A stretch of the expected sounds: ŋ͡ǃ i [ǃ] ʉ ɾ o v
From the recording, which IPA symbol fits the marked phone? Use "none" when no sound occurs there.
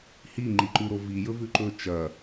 ǃ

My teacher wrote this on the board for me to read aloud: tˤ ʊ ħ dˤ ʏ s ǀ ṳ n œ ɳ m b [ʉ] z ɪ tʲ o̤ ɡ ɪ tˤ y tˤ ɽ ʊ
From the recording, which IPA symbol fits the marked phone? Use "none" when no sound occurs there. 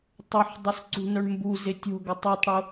u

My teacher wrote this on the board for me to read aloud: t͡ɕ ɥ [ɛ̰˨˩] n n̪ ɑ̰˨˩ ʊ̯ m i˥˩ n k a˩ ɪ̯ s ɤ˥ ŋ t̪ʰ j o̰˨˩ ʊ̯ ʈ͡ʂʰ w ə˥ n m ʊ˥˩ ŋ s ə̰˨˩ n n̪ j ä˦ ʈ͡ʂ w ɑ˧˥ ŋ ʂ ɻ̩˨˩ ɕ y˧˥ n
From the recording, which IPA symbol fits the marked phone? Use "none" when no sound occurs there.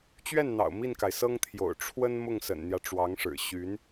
ɛ˥˩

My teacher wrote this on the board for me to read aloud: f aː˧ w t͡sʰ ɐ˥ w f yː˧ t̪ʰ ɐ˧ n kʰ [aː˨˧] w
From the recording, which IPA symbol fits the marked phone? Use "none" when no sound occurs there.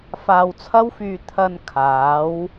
aː˨˧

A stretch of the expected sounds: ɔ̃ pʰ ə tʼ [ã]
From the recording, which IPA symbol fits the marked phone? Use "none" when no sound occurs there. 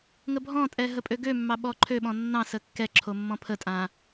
ã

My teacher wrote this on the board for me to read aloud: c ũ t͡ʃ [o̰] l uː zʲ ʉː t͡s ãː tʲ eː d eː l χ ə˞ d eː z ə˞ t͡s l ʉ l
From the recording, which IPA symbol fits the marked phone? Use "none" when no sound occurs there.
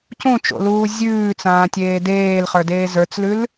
o̰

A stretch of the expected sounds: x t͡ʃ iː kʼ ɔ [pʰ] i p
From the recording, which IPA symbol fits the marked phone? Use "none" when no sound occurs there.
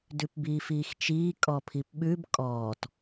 pʰ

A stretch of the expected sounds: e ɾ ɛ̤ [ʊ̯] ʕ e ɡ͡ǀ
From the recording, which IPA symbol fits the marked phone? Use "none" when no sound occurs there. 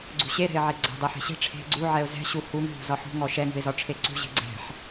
ɪ̯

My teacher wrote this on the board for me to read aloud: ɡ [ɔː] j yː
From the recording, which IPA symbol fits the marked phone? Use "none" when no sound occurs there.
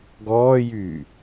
ɔː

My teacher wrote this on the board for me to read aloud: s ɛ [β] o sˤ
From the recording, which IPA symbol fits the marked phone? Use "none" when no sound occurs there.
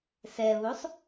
β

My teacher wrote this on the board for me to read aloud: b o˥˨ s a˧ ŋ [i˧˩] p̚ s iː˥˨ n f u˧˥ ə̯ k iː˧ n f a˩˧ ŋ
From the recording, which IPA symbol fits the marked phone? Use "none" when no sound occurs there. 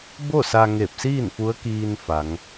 e˧˩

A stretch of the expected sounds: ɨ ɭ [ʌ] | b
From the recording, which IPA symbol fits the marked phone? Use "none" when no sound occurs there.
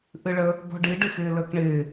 ə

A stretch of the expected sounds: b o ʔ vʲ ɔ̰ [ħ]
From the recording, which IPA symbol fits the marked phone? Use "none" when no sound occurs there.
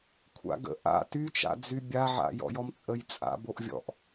ʔ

